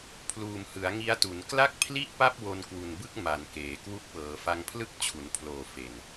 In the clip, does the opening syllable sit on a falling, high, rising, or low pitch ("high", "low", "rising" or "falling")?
low